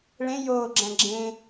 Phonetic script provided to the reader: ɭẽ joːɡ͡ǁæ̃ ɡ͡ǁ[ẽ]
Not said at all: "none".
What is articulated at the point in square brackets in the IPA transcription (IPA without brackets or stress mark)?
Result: ẽ